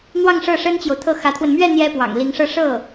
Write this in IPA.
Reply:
n̪wɑ˥˧ŋ ʂɤ˥˩ʂə˥nt͡ɕjo˨ʊ̯t̪ʰɤ˥˩ xä˧˥t̪ʰwə˧n mɥɛ˥˩ n̪jɛ˥pwɑ̰˨˩ŋli˧˥ŋʂɤ˥˧ ʂɤ˥˩

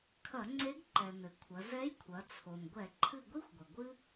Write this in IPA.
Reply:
kʰɐ˧˩˧ŋ͡ǀe˧˥ɡ ǃɛ˩nɘ˩kʷʰɐ˩˧ zɛ˧˥jkʷʰɐ˩˧ t͡sʰo˩n ɡʷɛ˧˩˧ǃʰɨ˦˨ɡʷi˥xʷɡʷɐ˩ ɡʷɨ˥

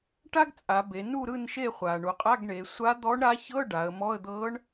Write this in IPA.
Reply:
ʈa˥ɡ t͡sʼa˩˧be˩˧ nu˦˨ɾɯ˦˨nʃe˦˨ χʷa˩ɳu˩ qʼa˧˥˧ɡɳe˩˧ sʷa˧˥d̪ɔ˧˥ɳɾa˧˥çɤ˧˥˧ ɖa˩˧ə̯mɔ˧˥˧ə̯ d̪ɤ˧˥ɳ

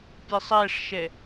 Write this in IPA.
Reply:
pʲesˤæʂʃɛ

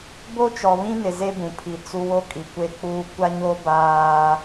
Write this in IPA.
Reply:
bo˦t͡ʃɔ˨βĩ˦nɪ˨ ze˦bũ˨pʰi˨ t͡su˦ wo˦kʼi˨kʷe˦k͡puː˦ kʷa˦ɲo˦ baː˦

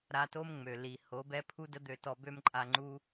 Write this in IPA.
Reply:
ɾa˧to˦mŋ͡mø˨ li˨ ho˨˦bɛ˦ pʰu˦də˦d̪ø˧tɔ˧ bø˦mǃʼa˧ŋ͡ǃu˦

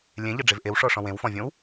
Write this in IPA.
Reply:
lʲẽʎɤɖ͡ʐev ʔewʂɔʂɔ̃ wẽwfɔ̃vʲõw

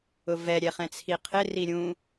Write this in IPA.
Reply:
ʊvɛ ɾʲɛχɛ̃t͡sʰiqʰɪ riɾʲũ

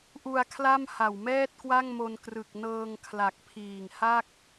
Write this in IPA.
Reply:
ʔu˧a̯kʰla˥˩m ha˨˩wmɛː˥˩t̚kwa˥˩ŋmo˧n krɯ˨˩k̚nɤː˧ŋkʰla˨˩k̚ pʰiː˨˩ŋha˥˩k̚

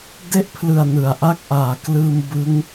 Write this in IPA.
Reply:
de˥˩ʔpʰlɯ˨˩a̯ nɯ˩˦a̯ʔa˥˩k̚ʔaː˨˩ klɯː˧mbɯ˦˥ŋ

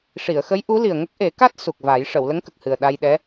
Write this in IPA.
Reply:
ʂi˨˩˨ə̯xə˧˥j ʔu˧˥li˨˩ə̯ŋə˦˥k̚ ʔe˨˩˦ka˦˥t̚ su˨˩k̚va˨˩˦j ʂə˨˩˨w lə˧˥ŋkə˨˩k̚ hɨ˨˩ə̯ ɗa˧jɗɛ˧˥

